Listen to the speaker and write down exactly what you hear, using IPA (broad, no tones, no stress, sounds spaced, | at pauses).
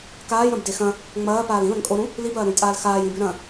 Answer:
k aː j ɾ ɐ̃ b d e x ɐ̃ | ŋ͡m ɐː p aː l ĩ l ɐ̃ ŋ kʼ o ɾ ũ | l i b ɐː ɾ ũ j tʼ aː l x aː j ĩ b ʉ ɾ ɐ̃